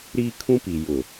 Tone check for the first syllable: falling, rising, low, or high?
high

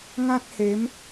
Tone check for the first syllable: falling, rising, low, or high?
high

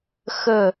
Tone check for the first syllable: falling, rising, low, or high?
falling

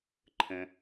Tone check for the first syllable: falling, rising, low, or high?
low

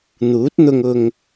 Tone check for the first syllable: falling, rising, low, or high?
rising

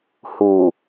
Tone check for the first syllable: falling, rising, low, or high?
low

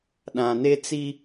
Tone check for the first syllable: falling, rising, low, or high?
low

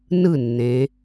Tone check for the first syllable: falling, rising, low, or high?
falling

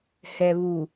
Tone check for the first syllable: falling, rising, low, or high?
low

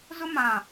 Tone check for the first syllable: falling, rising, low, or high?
high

